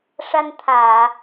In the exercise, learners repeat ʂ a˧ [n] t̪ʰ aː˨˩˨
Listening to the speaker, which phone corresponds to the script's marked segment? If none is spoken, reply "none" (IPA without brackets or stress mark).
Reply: n